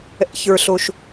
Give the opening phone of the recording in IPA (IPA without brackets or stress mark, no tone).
ɛ̰